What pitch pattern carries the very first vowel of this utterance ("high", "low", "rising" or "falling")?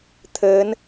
rising